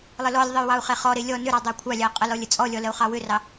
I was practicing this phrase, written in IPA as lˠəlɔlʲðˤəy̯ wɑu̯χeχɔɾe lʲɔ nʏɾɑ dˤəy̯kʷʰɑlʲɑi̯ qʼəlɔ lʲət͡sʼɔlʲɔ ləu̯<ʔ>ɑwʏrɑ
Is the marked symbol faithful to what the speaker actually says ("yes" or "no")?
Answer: no